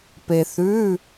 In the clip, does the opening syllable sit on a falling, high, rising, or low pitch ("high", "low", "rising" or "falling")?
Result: low